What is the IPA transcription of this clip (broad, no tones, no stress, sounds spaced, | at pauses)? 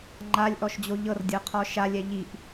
ŋ͡ǃ a lʲ ʔ ɔ ʃ d͡ʑ o ʎ ɤ r dʲ ɤ qʰ ɔ ʃ a lʲ ɛ ʎ i ʔ